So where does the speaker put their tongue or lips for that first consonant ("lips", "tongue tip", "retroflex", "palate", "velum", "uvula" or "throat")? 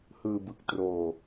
throat